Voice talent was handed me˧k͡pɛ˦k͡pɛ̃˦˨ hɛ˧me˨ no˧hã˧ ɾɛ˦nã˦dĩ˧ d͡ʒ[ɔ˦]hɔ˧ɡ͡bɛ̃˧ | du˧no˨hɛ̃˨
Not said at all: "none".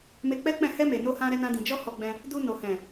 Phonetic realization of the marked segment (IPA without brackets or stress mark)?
ɔ˦